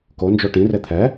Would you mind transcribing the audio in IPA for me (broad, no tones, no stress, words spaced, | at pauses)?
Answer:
kond͡ʒo ʈĩre t̪ʰɛ